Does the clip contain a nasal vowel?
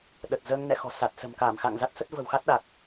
no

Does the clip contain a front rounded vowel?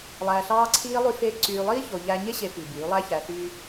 yes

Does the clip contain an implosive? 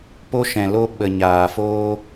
yes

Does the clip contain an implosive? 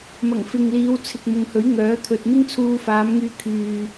no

